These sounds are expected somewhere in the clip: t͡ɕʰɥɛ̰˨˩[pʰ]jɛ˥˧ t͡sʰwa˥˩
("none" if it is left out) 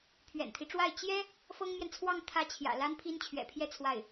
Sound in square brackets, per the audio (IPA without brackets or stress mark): pʰ